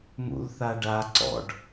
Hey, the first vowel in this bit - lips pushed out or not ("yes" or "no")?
yes